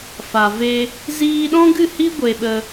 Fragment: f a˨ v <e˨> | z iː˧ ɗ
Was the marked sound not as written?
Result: yes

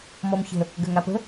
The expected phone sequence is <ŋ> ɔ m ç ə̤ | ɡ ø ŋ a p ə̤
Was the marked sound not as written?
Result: yes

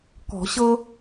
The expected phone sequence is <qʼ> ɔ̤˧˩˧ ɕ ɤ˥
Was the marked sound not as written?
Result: yes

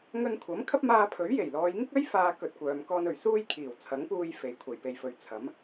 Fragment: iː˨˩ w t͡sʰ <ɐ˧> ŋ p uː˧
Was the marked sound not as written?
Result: yes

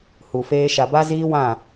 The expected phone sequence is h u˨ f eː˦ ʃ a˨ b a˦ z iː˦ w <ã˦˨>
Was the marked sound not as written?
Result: no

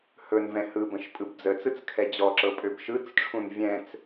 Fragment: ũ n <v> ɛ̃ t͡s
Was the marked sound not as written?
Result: yes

